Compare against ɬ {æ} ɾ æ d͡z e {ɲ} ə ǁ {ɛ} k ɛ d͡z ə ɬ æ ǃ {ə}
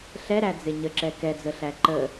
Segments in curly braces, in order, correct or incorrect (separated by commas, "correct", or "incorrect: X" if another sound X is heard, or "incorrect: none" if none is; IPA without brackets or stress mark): incorrect: ɛ, correct, correct, correct